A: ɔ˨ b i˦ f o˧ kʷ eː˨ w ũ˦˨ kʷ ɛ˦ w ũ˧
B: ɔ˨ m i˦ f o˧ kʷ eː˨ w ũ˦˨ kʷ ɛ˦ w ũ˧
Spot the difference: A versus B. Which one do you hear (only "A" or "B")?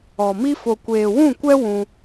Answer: B